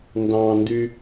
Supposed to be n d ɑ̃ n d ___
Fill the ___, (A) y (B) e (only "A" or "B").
A